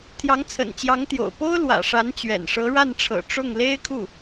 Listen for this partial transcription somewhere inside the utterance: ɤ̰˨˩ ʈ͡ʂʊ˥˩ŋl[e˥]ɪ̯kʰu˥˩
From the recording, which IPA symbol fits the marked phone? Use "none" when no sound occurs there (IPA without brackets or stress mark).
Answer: e˥